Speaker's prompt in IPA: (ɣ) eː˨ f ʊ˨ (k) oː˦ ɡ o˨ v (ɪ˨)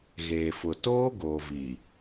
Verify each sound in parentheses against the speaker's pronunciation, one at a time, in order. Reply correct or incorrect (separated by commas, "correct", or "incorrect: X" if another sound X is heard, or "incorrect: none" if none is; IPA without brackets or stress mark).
correct, incorrect: t, incorrect: i˨